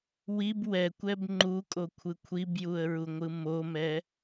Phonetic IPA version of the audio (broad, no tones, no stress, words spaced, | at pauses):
wib wɛkʷɛb ŋ͡ǃukʼokʷʰɯ kʷʰibjuə̯ɹuŋʷɯ momɛ